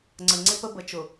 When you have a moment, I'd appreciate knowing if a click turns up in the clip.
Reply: yes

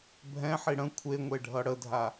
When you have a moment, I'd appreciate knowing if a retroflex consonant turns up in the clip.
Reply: yes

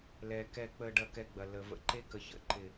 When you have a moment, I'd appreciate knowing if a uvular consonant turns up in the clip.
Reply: no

